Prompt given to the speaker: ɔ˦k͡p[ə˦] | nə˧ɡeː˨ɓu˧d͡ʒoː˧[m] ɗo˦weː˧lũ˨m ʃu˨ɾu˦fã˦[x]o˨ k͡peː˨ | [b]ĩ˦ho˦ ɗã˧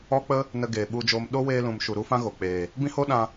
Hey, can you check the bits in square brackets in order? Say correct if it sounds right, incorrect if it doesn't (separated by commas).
correct, correct, incorrect, correct